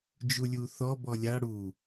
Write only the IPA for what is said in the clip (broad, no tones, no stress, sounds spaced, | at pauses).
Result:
d͡ʒ u lʲ u θ ɔ b ɔ lʲ a ɽ u